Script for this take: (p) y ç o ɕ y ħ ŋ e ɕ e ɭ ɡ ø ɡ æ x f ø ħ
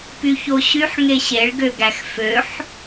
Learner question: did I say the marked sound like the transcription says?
yes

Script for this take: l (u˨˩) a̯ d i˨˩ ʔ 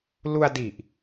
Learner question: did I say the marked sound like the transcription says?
no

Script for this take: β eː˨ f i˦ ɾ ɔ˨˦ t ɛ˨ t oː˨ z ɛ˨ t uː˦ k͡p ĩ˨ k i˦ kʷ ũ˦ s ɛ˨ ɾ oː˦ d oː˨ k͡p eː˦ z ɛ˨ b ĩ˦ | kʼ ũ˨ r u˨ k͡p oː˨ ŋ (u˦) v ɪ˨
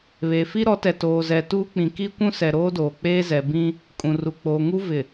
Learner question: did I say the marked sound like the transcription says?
yes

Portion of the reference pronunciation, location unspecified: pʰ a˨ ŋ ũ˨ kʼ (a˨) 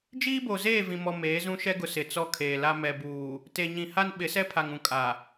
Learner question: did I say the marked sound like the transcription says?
yes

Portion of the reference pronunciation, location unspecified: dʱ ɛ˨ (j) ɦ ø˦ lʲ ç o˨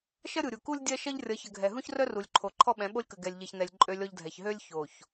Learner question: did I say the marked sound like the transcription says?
no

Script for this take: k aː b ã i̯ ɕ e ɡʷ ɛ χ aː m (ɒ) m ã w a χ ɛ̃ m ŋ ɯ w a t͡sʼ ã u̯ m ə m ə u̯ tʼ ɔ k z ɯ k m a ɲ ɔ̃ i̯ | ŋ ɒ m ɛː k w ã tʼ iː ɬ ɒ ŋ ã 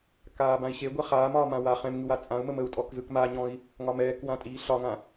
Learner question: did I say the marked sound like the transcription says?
no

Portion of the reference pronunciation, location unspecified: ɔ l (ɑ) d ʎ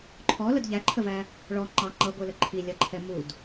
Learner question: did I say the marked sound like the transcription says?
no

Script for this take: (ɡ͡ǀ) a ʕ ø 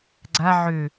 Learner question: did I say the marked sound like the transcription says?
yes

